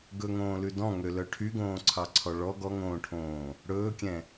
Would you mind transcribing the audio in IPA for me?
ɡ ɵ ŋ õː l ʉ d ɔ̃ ŋ ø l œ ʈʰ y ɡ õː ǀʰ ɑ ǀʰ ɔ ɭ ɔ ɡ ɔ ŋ õː ʈʰ õː | ɽ ɵː kʲ ɛ̃

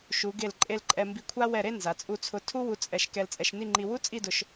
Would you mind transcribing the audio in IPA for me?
ʃ u˩˧ ɡ e˧˩ l ǃʼ e˧ l ǃʼ ɛ˧ m b i˧ kʷʰ a˥ w ɛ˧˩ ɾ e˥˧ n z a˩˧ t͡sʼ u˧ t͡sʰ ʊ˧ tʰ u˥ w u˧ t͡sʼ ɛ˧ ʃ k ɛ˧ l t͡sʼ ɛ˧ ʃ n i˥˧ ŋ͡ǃ i˧ w u˥ t͡sʼ i˥˧ d ʊ˧ ʃ

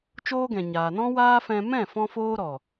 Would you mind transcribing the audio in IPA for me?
t͡ʃ oː˦ ɡ ɛ̃˨ ɲ aː˨ n ɔ̃˦ w aː˦ f ɛ̃˧ m ɛ̃˦˨ f ɔ̃˧ f oː˦ ɾ ɔ˨

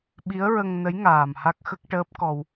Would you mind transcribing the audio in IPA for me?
ɓ i˧˥ ə̯ ɹ ə˧ ŋ n ə˧˥ j ŋ aː˨˩ m h a˦˥ k̚ x ə˦˥ k̚ ʈ əː˦˥ p̚ k ɔ˧ w

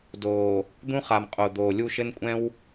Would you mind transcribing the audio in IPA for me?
d oː˨ | d̪ ũ˦ χ a˨ m qʼ o˨ d̪ oː˨ lʲ u˦˨ ʃ ɘ˦ n kʷʼ ɛ̃˦ w

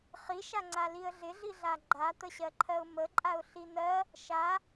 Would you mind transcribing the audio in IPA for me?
χ i ʃ a ŋ͡ǀ a l i ə̯ ɮ ɪ ɮ i ɮ a ɡ͡ǃ a t̪ ə ɕ ɜ ǃʰ ɜ ʊ̯ m ə ǃʼ a ʊ̯ ɬ i n̪ ɜ | ʃ a

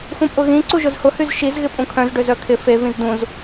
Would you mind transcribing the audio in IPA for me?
x ũ pʼ ʊ ɣ ĩ ǀ u ʒ ʊ z h ʊ h y z ʃ i z ɣ ɪ pʼ ũ kʰ œ̃ z ɖ ø z œ kʰ ɪ f e v ĩ z d ũ z

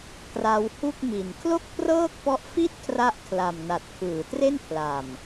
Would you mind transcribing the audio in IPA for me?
k r a˧ w h u˥˩ k̚ m i˨˩ n kʰ l o˥˩ k̚ p r ɤː˥˩ k̚ p ɔ˦˥ ʔ f i˥˩ t̚ kʰ r a˥˩ ʔ kʰ l a˨˩ m n a˨˩ t̚ kʰ ɯː˩˦ t r e˥˩ n pʰ l a˨˩ m

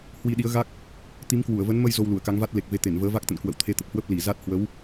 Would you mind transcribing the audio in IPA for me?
h w i˧ ɗ i˨˦ ə̯ ɣ a˦˥ k̚ | t̪ i˨˦ m k w u˧˩ ə̯ v ə˨˦ n m ə˧ j z o˧ w l u˧˩ ə̯ k a˨˦ ŋ v a˦˥ t̚ l e˨˩ k̚ v e˨˦ t̪ e˧˩ n v əː˨˦ v a˦˥ k̚ t̪ ə̰˧˨ n k w ə̰˧˨ w t̪ʰ e˨˦ t̪ ə˨˩ p̚ h w ə˦˥ p̚ l i˧˩ z a˦˥ t̚ h w ə˨˦ w

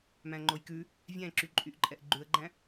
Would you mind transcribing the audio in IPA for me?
m æ̃ ŋ͡ǃ o j k ʉ | vʲ æ̃ ǁ y ǃʼ y ʔ ǃʼ ɛ ʔ ɡ͡ǃ ʉ ə̯ ɡ͡ǃ æ̃

